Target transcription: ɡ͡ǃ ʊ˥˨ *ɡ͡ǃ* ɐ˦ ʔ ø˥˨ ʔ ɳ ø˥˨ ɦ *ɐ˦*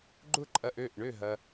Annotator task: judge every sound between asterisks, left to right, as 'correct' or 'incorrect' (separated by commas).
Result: incorrect, correct